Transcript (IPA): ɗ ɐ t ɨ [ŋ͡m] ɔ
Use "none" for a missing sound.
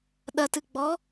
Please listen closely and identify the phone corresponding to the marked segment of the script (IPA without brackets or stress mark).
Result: ɡ͡b